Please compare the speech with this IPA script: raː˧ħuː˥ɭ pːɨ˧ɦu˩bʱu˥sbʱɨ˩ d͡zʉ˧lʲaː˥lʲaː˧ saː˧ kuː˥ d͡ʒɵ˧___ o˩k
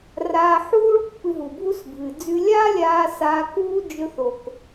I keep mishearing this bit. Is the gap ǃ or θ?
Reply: θ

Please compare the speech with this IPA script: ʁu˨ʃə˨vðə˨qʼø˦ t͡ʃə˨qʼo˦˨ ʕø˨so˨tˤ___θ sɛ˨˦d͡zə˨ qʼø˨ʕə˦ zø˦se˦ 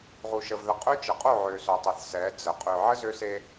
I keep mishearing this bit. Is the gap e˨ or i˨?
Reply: e˨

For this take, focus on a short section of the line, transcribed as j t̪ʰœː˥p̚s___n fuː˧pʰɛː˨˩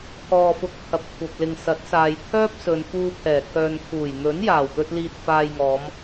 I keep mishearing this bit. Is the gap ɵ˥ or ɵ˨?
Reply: ɵ˨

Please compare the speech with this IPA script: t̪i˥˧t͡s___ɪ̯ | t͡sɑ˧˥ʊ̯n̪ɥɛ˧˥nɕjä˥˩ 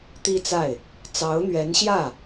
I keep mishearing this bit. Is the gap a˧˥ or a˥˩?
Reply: a˥˩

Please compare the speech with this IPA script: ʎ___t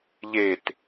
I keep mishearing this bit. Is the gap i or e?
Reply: e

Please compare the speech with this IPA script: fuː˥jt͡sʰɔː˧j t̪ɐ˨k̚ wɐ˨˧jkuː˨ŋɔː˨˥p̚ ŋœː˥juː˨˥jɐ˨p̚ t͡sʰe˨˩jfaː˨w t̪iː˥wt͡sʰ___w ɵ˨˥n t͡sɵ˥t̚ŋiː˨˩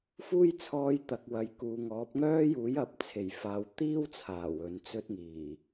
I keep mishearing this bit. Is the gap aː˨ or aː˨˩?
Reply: aː˨˩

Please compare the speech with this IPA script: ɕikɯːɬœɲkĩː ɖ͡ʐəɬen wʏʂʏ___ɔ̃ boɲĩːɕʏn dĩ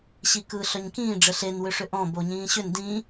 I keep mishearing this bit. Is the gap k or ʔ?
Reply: ʔ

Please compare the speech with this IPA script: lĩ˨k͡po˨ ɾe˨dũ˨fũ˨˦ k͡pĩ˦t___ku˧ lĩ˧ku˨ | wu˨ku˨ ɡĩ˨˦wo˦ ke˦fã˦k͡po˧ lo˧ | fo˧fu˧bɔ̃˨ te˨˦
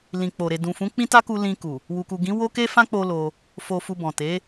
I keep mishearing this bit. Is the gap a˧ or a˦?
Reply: a˦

